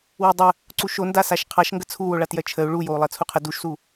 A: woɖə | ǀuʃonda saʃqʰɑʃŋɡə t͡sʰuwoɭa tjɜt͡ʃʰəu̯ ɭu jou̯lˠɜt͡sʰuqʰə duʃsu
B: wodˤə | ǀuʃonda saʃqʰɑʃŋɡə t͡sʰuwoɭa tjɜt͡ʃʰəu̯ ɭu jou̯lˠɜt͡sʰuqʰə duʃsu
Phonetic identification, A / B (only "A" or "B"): B